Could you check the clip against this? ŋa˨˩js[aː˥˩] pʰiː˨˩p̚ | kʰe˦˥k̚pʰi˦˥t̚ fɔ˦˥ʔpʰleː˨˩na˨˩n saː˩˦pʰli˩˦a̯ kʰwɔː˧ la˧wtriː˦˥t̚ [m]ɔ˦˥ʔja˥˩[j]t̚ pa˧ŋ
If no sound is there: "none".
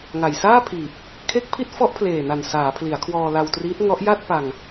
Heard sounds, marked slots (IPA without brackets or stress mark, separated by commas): aː˥˩, ŋ, none